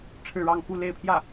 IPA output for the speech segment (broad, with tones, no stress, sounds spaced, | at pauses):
ʈ͡ʂʰ ɻ̩˥˧ ɻ ɑ˥˧ ŋ k u˥˧ l e˥˧ ɪ̯ pʰ j ä˥˩